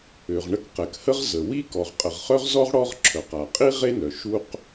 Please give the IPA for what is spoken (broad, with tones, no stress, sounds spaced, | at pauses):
ø˩ ʁ ɳ ə˥ k q ɛ˩ k h ə˥ ʁ z ə˩ w i˥ k ɔ˩ ʁ qʼ ə˩ ʁ χ œ˥ ʁ z ɔ˥ ʁ ɽ ɔ˥ ʁ ǁʰ œ˩ q a˩ qʼ i˥ ʁ e˥ n œ˩ ʃ u˥ q